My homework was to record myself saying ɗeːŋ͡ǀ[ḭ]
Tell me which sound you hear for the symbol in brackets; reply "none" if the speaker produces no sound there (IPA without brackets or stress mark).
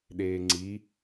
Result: i